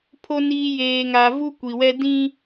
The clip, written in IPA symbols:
pʰo˨niː˨ jeː˨ŋa˨ vu˦kʷi˨wɛ˦ dĩ˦

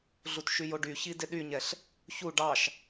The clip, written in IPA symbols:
ɮutʃyjoɖy çidɪɗyɲɛɬ | çu ɖɑʃ

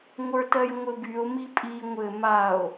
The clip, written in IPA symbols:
ŋʷə˞tɜjŋʷɘbyo̯ mipʼi ŋʷɘ mao̯

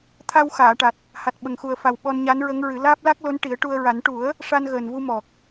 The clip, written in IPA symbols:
t̪ʰa˧wxaː˨˩˨ʈa˨˩t̚ | ha˨˩t̚ɓə˨˩ŋxu˨˩ə̯fa˨˩w ɓɔ˧nɲa˧˥nɹə˧˥ŋɹɨ˨˩˦ laː˦˥p̚la˦˥k̚lo˧˥n ʈi˨˩˦ə̯ʈu˧ə̯ ɹa˨˩˦n ʈu˨˩˦ə̯ | ʂa˧nɣəː˨˩nvu˧ mɔ˨˩k̚

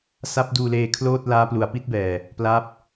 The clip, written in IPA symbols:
sa˦˥p̚duː˧leː˧ kʰloː˥˩t̚ laː˦˥plu˩˦a̯pi˦˥t̚bɛː˨˩ | pla˦˥p̚

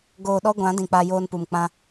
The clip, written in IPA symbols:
ɡoː˧ɗɔ˦ɡʷã˨˦ dĩ˨k͡pa˧ joː˧npu˨m k͡pã˧

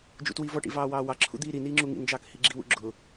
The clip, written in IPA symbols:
d͡ʒṵtwivɔʈḭ vɑːwɑːwɑǁʰṵ d̪iːɾiniː ŋ͡ǁuŋḭnd͡ʒɑːk hiɡ͡ǁiwṵ ɡ͡ǁʊ

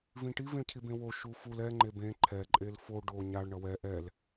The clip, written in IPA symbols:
vĩʈi vĩɭcʰibẽwo ʃuful ɛ ŋ͡ǃebẽ ǃʰɛ ǃʼelfo ɖo ɲaɭ ɳʌwɛ ʔɛl

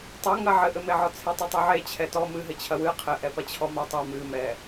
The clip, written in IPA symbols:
tˤɐŋɐ ʕɘʔɘmeʕɔ t͡sʰetˤɘtˤoʕe t͡ɕʰɛtɔ mɨɦɘt͡ɕʰɐ wɨ qʰɘʔɛpɐt͡ɕʰɔ matˤe mɨmɛ

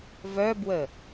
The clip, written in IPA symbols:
vœbwə

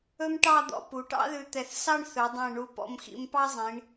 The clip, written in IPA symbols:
ɵ˥mʈɑ˥˧d̪ɔ̰˧ pu˩˧ʈɑ̰˥ðʉ˧ t̪ɛ˧θ sɑ˥˧ɳ θɵ˩˧dˤɛ̃˧˩ ɳu˧pɔ̰˧mxḭ˧mpɑ˥ zˤĩ˩˧ɳ

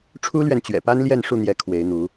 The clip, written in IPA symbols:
ʈ͡ʂʰu˦lɥɛ˨nt͡ɕɥɛ̰˨˩pa˦n ljɛ˥˨nʂu˥˨n̪jɛ˨˦ kʰwe˨˦ɪ̯n̪u˨˦

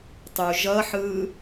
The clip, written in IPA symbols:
tˤu ʒʌħɯː

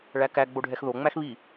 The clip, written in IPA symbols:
ɭækæ ɡ͡boɖʱɛxðo ŋ͡mæxβi

